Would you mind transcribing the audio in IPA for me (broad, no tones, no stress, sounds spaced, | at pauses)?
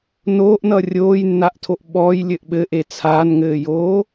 n oː ʔ n ʌ rʲ oː j nː a ʔ tʰ o ʔ ɓ ɔː j lʲ ɘ ʔ ɓ ɘ ʔ e t͡sʰ aː n ŋ ɘː j oː